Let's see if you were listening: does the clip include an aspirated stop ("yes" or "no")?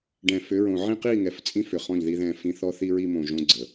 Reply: no